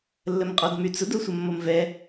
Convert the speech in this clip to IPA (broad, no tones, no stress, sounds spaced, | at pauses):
lː ə m qʼ ɔ d m y t͡s ʊ d o sʷ ə mː o m v ɛ